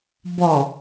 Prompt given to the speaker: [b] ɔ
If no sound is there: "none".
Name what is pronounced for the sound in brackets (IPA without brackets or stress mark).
b